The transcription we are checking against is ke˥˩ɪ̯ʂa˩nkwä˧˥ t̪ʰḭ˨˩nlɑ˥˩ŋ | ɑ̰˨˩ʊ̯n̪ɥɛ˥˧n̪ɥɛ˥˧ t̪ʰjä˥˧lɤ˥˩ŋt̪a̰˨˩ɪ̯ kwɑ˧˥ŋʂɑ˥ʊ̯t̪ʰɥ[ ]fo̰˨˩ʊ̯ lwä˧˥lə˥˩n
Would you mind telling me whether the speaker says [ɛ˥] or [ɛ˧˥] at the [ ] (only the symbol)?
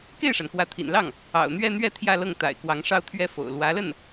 ɛ˥